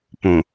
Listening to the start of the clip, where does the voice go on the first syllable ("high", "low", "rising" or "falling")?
low